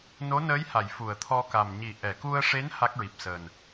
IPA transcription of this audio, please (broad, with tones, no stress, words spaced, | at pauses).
no˧˥nəː˧˥jha˨˩˨j fu˨˩˨ə̯t̪ʰɔ˧ka˨˩m ɲi˨˩˨ ʔɛ˨˩˨ku˧ə̯ʂe˧˥n ha˦˥k̚ɹi˨˩p̚səː˨˩n